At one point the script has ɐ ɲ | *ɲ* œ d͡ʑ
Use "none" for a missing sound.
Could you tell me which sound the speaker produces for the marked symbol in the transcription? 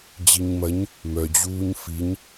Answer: m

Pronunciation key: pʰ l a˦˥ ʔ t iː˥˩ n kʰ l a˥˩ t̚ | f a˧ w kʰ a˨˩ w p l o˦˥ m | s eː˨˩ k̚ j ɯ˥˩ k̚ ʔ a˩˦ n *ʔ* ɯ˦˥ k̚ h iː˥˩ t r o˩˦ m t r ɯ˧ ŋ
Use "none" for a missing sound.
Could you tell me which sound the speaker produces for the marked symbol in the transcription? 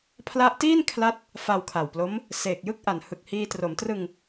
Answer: h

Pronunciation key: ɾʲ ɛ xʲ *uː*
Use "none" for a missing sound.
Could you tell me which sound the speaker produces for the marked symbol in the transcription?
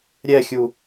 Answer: u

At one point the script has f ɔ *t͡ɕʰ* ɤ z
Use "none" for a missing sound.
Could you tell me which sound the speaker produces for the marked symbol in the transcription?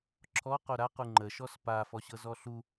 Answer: ɕ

